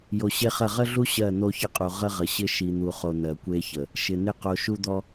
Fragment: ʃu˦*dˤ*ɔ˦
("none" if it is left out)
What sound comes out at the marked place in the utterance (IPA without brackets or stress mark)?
d̪